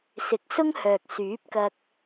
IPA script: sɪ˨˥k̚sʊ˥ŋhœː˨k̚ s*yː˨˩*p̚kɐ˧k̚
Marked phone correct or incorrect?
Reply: incorrect